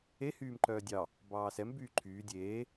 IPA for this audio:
e hyːmǃœːdʲɑ | bɑːsɛm byːǃʰyː dʲeː

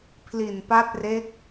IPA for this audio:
pʰli˨˩npa˦˥t̚re˦˥k̚

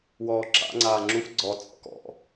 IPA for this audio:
wɔːǁa̰ ŋ͡ǀaːŋ͡ǁuf ɡ͡ǀɔ t͡sʼɔ̰kɔ̰

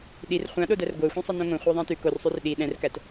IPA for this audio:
ɗir χʷãɗodær ɡʷɜxʷĩsˤə nõŋõ χʷɜðˤæ̃tʉ korsˤʉr ɗi ɗɛ̃rkæt

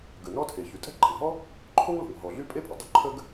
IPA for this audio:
ɡə˩nɔ˥tʰe˩ çy˩tʼɛ̤˥ǃɛ̤˩ŋɦɔ˥ | ǃʰo˥ŋ lo̤˩ŋɦɔ˩ɮy˥ pʼe˥pʼʊ˩ dˤo˥ǃʰə˥ɡ

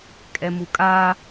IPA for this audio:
kʼɛmukʼa

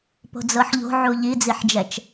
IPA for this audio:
po̤d͡zɤħʎo̤ ʕuʎid͡ziħd͡ʒɛt͡ʃ

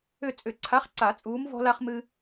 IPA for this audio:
ʏ˦˨ t͡sʼʏ˨˩˦ǀʰa˨˥χǀa˨˩˦ t͡sʼuː˨˥mvɔ̤˦la˦χ mɨ˦

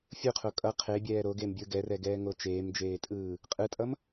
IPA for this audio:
fʲuqʰo kʼʌ qʰebʲɛː ɾoɡembʲɯ ɡɛrɛɡɛːŋo t͡ʃeːmd͡ʒeːtʼɯː | qʼɯtʼʌm

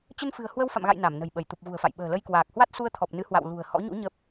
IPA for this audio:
t͡ɕə˧nfɨ̤˨˩ə̯ hwə˧wfa̰˧˨mɣa̰˧˨j na˧˩mnə̤˨˩jɓə˧˩j t̪u˨˩p̚ɣṳ˨˩ə̯fa̰˧˨j ɓə̤ː˨˩lə˧jkwaː˨˩k̚hwa˦˥t̚ su˧ə̯t̪ʰɔ˨˩p̚ nɨ˨˦hwa̰˧˨w lṳ˨˩ə̯hɔ̰˧˥ ɲṵ˧˥ ɲə˦˥p̚

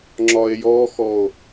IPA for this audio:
ŋ͡ǁɒe̯jɔxɔo̯

